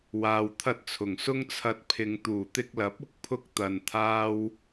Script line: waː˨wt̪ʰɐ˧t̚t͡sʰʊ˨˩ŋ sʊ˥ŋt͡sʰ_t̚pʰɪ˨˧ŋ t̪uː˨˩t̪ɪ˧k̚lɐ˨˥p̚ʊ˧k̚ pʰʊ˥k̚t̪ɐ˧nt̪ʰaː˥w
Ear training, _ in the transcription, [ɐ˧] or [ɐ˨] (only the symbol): ɐ˧